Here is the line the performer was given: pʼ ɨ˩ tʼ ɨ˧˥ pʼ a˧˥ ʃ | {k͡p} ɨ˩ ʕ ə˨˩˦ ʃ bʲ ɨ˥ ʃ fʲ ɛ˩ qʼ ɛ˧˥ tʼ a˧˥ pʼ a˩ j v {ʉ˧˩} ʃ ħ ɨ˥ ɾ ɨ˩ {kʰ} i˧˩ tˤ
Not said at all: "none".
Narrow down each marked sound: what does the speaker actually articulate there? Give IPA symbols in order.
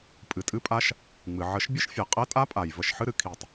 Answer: ŋ͡m, ə˧˩, kʰ

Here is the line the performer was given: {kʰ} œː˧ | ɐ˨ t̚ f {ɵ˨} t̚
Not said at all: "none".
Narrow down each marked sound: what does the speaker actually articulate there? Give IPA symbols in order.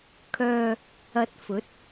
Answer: kʰ, ɵ˨˥

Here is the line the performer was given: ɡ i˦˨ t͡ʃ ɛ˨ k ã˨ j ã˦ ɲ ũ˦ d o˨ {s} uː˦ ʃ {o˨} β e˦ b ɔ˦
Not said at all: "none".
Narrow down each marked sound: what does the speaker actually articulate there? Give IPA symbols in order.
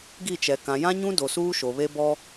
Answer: s, o˨

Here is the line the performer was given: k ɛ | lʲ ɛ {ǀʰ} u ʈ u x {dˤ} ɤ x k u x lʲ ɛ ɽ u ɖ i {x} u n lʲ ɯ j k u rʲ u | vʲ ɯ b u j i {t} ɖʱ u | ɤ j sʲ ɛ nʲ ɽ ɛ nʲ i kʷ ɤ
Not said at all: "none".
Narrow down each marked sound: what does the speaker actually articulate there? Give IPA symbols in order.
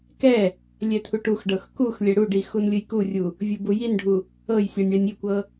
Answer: t̪ʰ, ɖ, x, n

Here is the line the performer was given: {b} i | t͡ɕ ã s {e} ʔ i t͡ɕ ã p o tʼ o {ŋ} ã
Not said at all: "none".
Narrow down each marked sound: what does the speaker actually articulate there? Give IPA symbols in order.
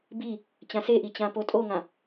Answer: b, e, ŋ

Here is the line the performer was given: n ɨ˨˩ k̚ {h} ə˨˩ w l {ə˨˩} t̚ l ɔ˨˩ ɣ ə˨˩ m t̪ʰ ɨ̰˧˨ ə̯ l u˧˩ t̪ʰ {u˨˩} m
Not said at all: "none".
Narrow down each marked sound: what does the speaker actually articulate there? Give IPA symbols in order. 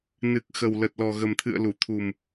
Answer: x, ə˨˩, u˨˩

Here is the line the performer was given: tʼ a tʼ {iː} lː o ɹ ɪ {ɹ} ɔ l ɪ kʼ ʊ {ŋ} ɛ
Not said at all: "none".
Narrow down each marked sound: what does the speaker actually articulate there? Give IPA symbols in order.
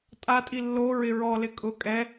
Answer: i, ɹ, kʼ

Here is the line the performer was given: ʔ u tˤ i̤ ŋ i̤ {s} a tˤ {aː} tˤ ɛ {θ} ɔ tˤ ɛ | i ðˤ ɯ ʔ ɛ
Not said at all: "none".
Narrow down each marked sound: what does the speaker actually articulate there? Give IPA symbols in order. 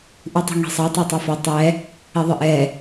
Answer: sˤ, a, f

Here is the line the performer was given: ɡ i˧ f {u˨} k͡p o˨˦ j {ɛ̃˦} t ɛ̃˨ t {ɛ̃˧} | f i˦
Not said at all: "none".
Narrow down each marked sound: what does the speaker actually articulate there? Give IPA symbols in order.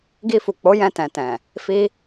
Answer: u˨, ɛ̃˧, ɛ̃˨

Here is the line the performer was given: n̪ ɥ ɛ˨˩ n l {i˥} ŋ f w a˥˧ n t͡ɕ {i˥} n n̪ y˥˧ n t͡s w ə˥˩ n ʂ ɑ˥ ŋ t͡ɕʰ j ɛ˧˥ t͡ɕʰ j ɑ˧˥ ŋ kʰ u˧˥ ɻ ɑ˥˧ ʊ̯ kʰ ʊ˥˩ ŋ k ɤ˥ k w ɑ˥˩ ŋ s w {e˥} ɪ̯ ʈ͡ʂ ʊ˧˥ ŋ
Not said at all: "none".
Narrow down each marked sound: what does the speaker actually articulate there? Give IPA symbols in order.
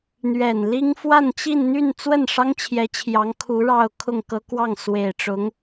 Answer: i˥, i˥˧, e˨˩

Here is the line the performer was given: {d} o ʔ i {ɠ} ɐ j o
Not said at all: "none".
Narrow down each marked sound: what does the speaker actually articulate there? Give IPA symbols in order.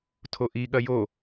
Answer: tʰ, ɠ

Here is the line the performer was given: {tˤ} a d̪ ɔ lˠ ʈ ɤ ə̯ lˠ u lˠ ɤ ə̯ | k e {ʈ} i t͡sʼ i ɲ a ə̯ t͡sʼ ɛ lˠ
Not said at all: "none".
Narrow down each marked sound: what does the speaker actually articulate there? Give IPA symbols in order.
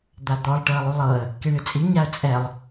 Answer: d̪, ɳ

